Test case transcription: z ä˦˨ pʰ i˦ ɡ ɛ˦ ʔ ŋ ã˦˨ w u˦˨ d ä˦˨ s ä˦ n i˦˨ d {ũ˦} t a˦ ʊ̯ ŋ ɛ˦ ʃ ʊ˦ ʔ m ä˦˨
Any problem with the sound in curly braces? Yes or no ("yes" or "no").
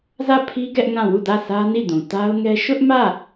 yes